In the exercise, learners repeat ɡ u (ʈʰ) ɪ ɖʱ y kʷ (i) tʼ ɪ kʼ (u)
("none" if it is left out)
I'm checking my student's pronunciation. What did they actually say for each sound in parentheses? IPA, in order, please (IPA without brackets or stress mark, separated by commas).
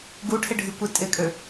ʈʰ, i, ø